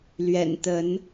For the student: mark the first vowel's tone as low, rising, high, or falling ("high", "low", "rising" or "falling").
low